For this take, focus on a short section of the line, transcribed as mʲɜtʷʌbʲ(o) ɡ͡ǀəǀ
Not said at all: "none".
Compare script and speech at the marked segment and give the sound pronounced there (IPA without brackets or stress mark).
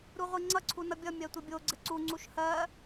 o